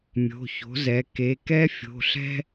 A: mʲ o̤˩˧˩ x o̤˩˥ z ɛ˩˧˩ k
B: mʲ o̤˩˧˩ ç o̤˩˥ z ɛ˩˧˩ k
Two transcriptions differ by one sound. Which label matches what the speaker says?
B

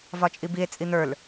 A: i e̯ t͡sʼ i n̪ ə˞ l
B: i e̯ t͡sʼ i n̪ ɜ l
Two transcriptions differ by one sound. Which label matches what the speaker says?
A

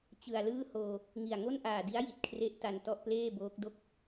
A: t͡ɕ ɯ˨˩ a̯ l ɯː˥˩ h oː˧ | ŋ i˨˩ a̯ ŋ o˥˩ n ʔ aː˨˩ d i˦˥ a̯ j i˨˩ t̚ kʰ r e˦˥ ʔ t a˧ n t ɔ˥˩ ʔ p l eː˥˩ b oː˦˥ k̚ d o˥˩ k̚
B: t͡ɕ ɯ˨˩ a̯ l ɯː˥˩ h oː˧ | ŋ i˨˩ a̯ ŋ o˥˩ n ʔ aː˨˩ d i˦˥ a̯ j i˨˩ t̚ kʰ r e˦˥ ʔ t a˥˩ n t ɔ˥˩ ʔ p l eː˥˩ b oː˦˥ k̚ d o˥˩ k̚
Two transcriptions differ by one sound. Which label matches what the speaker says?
A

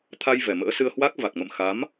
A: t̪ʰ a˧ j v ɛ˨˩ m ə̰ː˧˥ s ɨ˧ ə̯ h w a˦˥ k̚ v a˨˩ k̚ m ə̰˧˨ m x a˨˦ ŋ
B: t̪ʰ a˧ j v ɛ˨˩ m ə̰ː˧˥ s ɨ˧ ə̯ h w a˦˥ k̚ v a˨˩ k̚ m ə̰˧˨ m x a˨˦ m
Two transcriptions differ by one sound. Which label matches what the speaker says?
B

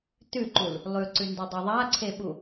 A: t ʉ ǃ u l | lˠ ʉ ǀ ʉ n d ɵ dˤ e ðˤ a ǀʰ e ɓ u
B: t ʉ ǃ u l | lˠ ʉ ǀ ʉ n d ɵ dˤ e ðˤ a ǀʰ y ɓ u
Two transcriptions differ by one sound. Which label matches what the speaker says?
A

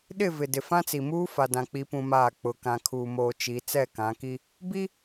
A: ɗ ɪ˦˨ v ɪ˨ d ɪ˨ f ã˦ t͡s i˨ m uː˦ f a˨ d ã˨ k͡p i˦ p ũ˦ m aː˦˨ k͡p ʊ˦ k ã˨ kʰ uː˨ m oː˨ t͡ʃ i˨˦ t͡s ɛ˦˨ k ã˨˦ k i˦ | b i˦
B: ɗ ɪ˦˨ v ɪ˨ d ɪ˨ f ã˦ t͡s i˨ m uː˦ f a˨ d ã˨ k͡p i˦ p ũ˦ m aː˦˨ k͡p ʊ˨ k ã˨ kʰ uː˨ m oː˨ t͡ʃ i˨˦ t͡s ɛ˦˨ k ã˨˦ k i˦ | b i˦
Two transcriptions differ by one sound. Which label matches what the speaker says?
B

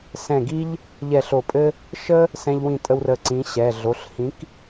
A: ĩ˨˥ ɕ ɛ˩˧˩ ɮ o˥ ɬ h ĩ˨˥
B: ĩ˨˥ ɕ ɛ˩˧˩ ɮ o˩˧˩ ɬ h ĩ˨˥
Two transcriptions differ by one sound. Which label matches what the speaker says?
B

